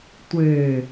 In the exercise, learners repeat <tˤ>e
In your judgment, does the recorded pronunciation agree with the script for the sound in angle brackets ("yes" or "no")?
no